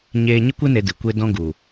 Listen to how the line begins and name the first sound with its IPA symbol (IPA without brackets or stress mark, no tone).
ɲ